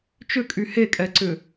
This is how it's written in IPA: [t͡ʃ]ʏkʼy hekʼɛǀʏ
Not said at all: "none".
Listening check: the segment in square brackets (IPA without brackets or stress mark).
t͡ʃ